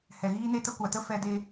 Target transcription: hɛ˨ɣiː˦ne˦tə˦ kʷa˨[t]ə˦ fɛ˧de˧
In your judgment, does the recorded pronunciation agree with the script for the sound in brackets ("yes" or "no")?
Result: yes